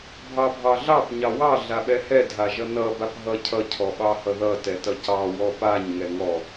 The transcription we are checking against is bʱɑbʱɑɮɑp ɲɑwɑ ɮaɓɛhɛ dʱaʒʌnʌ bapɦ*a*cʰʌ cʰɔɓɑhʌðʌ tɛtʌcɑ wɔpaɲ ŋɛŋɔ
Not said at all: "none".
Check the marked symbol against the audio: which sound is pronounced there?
ʌ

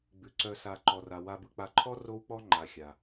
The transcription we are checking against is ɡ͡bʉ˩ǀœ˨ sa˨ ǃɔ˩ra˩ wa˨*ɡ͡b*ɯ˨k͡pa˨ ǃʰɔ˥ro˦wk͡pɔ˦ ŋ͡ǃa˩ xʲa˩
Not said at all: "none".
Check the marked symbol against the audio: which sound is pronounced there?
b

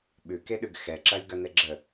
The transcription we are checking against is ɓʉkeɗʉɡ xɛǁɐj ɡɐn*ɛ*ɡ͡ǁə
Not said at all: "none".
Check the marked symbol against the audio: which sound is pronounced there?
ɛ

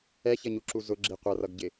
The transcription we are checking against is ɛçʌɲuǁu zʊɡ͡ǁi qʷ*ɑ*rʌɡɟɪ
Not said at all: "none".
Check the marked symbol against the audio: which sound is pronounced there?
ʌ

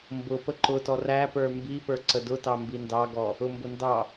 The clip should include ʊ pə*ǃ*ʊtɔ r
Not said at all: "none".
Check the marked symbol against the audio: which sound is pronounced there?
ǃ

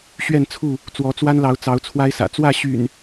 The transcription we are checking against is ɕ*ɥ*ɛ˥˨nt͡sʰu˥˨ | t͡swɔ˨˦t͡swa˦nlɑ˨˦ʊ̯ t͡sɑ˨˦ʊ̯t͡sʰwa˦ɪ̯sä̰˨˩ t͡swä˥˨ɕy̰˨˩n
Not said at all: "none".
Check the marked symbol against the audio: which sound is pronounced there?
ɥ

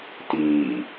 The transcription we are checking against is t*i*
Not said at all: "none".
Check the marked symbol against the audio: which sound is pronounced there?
iː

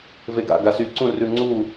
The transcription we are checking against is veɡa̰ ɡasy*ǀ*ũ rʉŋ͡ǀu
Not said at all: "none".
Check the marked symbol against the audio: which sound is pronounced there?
ǀ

